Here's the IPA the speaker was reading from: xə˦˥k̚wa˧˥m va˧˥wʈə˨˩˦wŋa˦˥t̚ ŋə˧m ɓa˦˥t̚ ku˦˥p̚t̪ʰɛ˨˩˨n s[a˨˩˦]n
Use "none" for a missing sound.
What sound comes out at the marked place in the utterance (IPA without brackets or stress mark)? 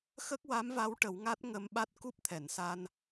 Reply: a˧